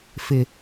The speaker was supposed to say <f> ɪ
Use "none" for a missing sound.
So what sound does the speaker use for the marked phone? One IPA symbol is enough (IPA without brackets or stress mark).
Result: f